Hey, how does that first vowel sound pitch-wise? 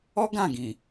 high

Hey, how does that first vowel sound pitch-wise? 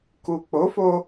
low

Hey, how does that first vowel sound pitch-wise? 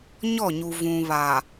falling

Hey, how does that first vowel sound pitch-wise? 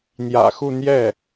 low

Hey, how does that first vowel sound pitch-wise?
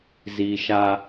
low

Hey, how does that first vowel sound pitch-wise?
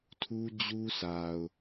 high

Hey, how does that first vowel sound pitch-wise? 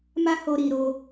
high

